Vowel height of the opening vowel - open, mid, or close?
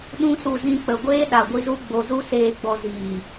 close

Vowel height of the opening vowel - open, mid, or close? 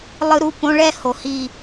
close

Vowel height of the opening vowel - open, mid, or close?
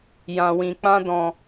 open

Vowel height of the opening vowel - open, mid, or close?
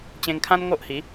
mid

